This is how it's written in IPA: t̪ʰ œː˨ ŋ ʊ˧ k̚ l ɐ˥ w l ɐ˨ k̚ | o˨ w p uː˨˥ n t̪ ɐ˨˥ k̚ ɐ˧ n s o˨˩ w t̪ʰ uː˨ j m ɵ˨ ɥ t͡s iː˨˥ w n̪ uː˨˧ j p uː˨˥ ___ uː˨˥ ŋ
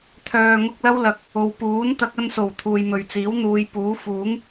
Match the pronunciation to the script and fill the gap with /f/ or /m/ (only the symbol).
f